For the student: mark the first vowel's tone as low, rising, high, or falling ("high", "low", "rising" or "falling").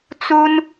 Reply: high